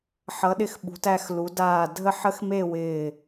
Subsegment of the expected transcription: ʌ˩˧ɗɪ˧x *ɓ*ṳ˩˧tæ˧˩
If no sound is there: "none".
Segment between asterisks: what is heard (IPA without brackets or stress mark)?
ɓ